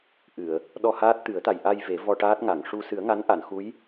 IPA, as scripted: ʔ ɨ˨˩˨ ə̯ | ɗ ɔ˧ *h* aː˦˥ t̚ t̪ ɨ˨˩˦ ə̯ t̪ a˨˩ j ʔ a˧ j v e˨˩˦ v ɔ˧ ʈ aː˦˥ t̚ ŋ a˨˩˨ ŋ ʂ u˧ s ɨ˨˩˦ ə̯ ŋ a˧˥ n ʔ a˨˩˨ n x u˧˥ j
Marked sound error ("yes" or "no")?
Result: no